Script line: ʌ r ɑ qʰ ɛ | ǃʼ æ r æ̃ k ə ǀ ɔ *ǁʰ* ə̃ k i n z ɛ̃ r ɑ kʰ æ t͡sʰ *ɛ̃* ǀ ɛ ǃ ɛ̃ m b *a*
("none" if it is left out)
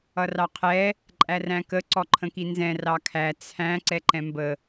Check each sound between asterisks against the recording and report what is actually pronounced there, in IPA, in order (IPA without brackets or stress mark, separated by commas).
ǃʰ, æ̃, ə